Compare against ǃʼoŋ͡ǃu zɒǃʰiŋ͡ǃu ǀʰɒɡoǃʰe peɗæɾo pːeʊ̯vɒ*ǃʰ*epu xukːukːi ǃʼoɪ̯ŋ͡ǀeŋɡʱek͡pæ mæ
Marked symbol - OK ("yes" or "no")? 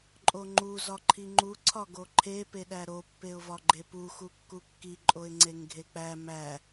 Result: no